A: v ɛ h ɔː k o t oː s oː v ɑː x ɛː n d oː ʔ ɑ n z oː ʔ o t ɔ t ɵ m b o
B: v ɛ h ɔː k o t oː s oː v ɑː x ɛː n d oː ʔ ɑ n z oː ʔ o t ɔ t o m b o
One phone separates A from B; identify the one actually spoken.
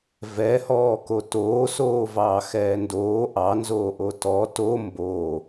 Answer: B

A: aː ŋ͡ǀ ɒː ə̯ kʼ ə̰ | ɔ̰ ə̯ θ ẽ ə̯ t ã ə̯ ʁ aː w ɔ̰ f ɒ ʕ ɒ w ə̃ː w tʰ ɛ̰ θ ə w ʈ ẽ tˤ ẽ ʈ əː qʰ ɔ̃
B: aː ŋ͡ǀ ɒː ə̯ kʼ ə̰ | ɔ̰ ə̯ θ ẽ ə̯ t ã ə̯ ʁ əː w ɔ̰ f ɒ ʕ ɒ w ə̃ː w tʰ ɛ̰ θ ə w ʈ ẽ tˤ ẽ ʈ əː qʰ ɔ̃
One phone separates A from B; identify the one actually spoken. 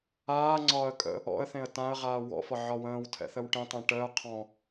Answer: A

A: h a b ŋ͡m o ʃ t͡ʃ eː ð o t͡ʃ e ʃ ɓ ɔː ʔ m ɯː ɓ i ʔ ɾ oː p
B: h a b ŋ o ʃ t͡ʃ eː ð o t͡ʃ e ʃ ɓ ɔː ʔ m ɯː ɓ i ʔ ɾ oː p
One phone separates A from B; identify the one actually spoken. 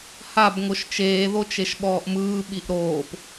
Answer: B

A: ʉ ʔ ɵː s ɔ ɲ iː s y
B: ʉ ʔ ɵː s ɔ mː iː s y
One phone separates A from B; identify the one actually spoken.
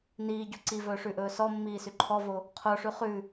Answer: B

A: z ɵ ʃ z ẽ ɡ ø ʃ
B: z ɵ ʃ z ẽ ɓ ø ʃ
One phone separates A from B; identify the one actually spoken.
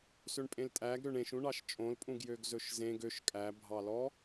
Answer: A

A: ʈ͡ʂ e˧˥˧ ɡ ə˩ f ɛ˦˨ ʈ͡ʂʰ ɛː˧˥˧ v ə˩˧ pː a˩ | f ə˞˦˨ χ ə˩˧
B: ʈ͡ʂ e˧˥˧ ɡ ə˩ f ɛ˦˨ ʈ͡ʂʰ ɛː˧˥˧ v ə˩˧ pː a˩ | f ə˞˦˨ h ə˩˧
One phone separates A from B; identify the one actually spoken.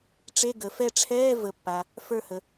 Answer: B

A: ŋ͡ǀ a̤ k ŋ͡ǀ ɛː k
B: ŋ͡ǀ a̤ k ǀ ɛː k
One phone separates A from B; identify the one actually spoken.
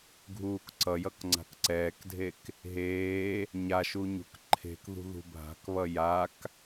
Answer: B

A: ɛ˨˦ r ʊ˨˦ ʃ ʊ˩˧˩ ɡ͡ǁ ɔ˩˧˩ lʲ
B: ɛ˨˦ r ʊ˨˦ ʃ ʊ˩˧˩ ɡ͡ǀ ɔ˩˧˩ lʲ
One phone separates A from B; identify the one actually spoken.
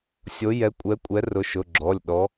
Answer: A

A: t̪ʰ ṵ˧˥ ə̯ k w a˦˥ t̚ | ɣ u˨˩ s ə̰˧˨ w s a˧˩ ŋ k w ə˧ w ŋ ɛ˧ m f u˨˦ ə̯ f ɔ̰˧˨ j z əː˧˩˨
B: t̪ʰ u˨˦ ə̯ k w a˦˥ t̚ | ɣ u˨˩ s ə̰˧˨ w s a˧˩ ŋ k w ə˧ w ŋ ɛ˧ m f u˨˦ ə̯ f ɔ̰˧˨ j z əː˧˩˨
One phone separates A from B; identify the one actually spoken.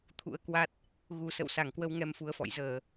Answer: A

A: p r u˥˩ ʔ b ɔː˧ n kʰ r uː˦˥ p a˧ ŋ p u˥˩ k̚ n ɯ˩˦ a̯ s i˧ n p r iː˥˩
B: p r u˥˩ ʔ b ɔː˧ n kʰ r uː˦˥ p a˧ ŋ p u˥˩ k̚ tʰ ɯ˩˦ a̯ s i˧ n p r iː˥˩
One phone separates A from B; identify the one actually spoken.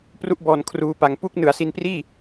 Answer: A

